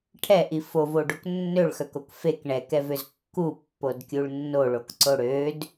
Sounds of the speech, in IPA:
ʈʰɛʔi fovoɖok nːøɭxœkok fek ɳɛkɛvøz kːupːodkʲuɭ nːoɭokǀo ɽød

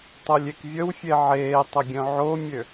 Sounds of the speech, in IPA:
tˤolʲekvʲəwfʲe ʕeːtˤə ɡʲœ̃ʕomʲø

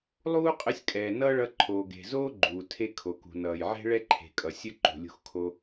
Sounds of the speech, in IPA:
lˠuː˥qʼə˧sʲkʼɛː˩ nʌː˥ɭʌ˧ǃʰoː˩ɡe̤˩ zoː˥ɡ͡ǃuː˩tʰe˧ kʰo˩kṳ˩nʌː˩j ʕe̤˥ɭɛ˥ǃʰe̤˩kʼʌ˩ sʲə˥ ǃṳ˩lʲṳ˧xkʰo˧

